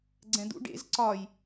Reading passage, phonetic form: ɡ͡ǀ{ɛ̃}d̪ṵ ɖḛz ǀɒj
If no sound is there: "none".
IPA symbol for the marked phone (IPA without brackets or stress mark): ɛ̃